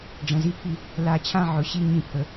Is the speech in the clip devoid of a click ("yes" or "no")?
yes